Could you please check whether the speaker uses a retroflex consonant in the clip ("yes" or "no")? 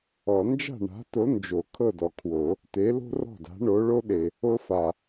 yes